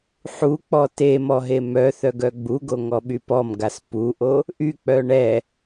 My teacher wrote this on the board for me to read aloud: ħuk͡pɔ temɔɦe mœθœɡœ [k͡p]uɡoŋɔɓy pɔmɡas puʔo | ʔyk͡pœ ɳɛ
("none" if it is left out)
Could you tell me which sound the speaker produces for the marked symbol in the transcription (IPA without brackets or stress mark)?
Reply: ɡ͡b